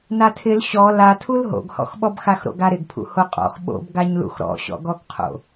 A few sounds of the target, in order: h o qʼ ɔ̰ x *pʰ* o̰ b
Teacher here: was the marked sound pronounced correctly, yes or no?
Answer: no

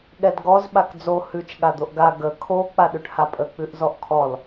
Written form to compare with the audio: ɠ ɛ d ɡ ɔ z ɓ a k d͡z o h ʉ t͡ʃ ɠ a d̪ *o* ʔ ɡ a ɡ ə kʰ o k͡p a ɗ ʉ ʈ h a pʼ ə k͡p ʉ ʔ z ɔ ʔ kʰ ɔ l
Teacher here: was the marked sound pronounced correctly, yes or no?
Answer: yes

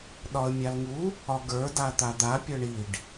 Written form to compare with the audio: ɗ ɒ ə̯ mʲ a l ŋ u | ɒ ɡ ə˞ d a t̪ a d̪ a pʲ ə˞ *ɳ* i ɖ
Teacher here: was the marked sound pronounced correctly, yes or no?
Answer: yes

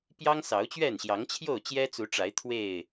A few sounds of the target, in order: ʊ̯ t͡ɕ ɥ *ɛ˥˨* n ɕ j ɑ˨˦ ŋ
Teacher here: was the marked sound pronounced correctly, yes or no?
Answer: yes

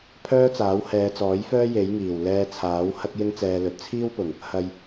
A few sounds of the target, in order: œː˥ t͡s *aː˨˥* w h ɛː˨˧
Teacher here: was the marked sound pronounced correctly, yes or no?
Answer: yes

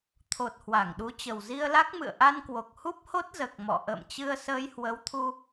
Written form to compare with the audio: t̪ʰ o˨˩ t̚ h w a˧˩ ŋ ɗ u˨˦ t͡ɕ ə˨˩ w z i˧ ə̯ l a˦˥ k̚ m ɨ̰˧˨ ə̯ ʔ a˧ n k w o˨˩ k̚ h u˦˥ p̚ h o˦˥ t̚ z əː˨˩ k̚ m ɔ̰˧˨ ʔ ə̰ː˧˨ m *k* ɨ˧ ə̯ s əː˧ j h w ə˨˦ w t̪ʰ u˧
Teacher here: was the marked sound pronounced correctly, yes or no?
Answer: no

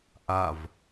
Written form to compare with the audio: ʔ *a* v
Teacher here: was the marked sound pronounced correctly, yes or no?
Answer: yes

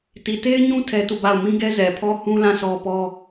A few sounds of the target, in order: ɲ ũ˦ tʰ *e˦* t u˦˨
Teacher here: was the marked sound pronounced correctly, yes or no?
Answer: no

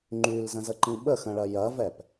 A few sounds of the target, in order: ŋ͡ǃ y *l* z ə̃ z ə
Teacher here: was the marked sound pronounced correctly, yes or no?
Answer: yes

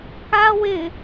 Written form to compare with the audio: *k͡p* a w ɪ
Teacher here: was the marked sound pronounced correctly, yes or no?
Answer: no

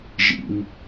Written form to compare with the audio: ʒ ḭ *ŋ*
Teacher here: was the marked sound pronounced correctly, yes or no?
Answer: yes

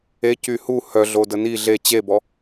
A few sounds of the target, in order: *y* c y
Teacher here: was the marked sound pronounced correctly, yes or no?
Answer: no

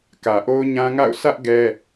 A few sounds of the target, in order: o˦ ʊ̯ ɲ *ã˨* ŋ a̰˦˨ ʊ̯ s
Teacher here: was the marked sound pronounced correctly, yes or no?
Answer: no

